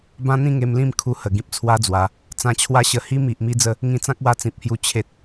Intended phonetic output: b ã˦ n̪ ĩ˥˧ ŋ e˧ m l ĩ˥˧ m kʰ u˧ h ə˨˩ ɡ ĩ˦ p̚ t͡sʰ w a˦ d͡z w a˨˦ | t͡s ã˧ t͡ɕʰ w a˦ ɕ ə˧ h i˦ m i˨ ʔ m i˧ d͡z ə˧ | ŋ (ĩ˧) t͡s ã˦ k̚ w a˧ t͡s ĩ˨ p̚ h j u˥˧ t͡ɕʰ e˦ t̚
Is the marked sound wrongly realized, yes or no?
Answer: no